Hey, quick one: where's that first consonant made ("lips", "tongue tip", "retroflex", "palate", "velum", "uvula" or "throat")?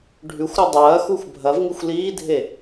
retroflex